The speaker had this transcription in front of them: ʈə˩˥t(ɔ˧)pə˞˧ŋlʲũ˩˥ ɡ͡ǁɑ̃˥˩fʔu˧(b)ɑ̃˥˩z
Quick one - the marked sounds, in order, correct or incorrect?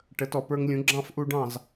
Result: incorrect: ɔ˩, incorrect: ɖ

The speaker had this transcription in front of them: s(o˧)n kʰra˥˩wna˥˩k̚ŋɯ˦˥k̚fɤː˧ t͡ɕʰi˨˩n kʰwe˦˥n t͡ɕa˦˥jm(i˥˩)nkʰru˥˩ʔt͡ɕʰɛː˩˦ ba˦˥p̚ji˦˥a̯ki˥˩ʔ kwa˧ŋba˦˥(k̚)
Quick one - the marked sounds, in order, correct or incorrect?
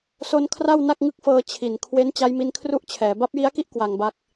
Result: correct, incorrect: i˦˥, correct

